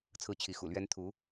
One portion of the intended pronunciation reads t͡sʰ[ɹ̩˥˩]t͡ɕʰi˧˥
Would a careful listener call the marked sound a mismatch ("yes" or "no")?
no